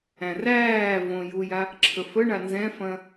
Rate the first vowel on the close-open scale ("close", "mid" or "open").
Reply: open